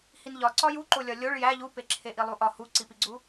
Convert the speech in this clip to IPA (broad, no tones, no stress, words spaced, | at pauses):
hinʎɒ ǀɒjuǃolʲɒ lʲoɭ jæ ʎupeǁʰe ʔilˠuʔɒ huǀipiɡ͡ǀu